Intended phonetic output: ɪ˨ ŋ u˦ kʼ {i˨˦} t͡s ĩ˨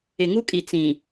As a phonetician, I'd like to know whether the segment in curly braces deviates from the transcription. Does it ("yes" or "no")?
yes